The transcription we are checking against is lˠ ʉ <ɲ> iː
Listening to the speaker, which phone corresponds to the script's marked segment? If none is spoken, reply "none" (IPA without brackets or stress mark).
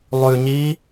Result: ɲ